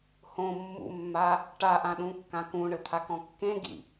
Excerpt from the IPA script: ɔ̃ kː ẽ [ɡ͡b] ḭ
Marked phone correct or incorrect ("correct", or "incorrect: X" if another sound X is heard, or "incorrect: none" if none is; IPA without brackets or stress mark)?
incorrect: ɡ